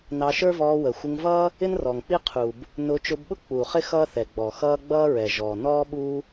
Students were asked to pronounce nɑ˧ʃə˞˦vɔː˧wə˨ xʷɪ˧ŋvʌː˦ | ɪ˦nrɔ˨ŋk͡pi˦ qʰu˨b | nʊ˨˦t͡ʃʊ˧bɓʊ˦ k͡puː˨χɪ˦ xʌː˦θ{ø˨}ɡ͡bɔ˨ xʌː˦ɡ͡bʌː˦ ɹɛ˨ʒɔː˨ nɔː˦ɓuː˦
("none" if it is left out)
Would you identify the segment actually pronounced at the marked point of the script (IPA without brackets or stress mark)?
ɛ˨